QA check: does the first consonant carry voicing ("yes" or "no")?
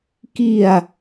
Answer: no